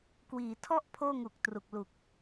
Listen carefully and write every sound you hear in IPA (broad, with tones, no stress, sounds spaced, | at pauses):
k w iː˩˦ tʰ ɔ˥˩ ʔ pʰ oː˥˩ ŋ u˨˩ k̚ t r u˨˩ k̚ l u˨˩ k̚